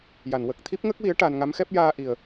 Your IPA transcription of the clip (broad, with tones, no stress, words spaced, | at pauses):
ja˨˩˨nwə˨˩k̚ t̪ʰi˦˥p̚ŋə˦˥k̚wi˧˥ə̯ ʈa˧n ŋa˧˥mxɛ˦˥p̚jaː˧ ʔi˨˩ə̯